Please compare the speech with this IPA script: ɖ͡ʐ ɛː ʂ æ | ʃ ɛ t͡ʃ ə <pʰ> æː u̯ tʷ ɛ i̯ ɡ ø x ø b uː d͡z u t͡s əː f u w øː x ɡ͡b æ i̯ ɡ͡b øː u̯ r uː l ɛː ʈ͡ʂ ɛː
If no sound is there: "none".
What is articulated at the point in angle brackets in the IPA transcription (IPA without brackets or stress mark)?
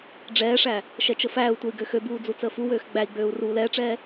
f